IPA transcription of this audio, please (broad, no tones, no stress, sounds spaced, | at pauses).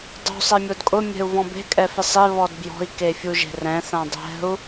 dˤ ṳ sˤ ɛ mʲ o d kʼ ʊ mʲ ɛ̤ u̯ v ɔ̃ b e̤ kʼ ɛ f ɪ sˤ e β ɔ d b j ɔ̤ i̯ k e fʲ u ʒ e̤ r ɛ̃ θ ã dˤ ɛ̤ u̯